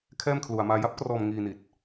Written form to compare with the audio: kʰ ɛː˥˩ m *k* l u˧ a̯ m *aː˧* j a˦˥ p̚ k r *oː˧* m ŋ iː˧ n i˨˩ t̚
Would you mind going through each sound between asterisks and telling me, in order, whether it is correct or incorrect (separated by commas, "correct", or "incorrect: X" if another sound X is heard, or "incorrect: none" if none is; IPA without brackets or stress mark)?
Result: incorrect: kʰ, correct, incorrect: ɔː˧